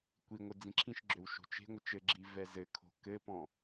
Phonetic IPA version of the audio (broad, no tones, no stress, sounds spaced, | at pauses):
kʷ i ŋʷ ə d͡z ĩ ǁʰ ĩ ʃ ɡ͡ǁ ø w ʃ o̤ t͡ʃ e̤ ŋʷ ə t͡ʃ ɘ ɡ͡ǁ i v ɛ z ɘ kʰ o̤ k ɘ p ɔ̃